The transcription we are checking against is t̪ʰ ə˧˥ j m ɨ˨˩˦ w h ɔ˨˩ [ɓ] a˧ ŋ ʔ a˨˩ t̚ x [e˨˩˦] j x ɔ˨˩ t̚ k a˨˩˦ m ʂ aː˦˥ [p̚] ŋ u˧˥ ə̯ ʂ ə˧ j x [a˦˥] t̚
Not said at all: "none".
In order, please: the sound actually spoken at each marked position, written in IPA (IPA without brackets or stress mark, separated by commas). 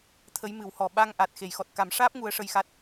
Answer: ɓ, e˨˩˨, p̚, a˦˥